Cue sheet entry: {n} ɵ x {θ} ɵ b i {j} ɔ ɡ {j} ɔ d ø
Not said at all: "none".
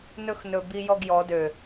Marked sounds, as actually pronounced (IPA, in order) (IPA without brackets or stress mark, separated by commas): n, n, j, j